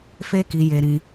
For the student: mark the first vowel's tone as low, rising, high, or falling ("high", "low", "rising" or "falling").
high